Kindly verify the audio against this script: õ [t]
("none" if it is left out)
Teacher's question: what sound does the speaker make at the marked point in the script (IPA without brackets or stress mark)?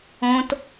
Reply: t